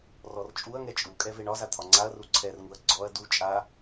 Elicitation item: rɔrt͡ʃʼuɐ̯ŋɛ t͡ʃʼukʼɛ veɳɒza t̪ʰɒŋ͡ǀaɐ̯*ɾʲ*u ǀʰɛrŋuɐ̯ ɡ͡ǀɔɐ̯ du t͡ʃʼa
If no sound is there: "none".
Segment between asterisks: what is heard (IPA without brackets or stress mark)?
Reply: r